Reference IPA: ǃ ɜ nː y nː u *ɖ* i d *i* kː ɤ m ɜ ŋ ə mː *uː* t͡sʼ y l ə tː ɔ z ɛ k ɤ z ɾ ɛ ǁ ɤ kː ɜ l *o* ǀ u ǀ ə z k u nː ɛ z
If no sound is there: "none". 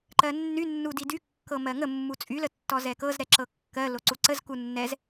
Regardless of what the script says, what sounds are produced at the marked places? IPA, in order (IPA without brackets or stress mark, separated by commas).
d, y, u, o